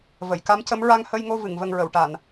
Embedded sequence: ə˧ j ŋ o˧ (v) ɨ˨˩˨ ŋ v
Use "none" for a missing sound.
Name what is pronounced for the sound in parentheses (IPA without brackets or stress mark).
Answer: v